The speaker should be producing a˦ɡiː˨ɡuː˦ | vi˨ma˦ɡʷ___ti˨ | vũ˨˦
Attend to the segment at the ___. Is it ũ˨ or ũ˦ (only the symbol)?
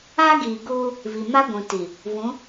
ũ˨